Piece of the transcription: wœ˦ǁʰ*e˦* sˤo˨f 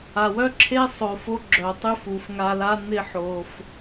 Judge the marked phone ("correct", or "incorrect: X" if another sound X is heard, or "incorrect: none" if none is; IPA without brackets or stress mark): correct